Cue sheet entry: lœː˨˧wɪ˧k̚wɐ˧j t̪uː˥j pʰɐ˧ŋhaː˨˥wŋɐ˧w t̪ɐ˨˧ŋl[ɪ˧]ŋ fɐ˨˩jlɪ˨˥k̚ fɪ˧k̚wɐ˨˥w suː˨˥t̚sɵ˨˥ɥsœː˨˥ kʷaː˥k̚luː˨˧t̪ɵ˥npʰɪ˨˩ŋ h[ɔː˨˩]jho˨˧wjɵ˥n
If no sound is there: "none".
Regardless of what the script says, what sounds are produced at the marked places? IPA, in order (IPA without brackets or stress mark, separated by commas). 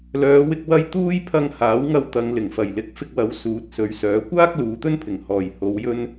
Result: ɪ˨˩, ɔː˨˩